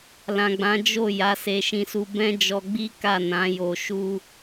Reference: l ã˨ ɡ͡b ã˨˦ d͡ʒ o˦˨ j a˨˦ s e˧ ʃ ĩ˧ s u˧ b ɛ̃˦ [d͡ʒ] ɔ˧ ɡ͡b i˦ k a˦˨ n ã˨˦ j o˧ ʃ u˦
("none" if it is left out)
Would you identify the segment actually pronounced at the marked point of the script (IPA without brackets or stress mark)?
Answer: d͡ʒ